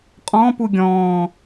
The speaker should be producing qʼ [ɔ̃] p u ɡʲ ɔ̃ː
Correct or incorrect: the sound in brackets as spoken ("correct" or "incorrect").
correct